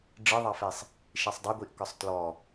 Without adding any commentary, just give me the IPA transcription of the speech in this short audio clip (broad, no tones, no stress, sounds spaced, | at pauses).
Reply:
ɖ͡ʐ ɨ ðˤ ɑ f e sˤ | ʃ i sˤ dˤ i ɡʷ i ʔ k ɒ sˤ t l ɔ